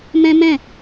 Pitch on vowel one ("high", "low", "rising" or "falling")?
high